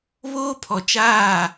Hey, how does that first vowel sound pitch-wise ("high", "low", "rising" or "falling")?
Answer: high